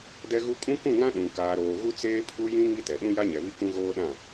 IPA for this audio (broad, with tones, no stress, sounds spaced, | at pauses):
d ɛ˦ ɣ u˦ kʼ ũ˦ k ũ˦˨ ŋ ã˦ ɗ ũ˨ k aː˨ ɾ oː˨ ɣ u˦ t͡s eː˦ pʰ u˦ j ĩ˦ ŋ i˦ t ɛ˨ ɗ ũ˦ j a˦ ɲ ɛ˨ β i˦ k ũ˦ ɣ oː˦ ɗ ã˦˨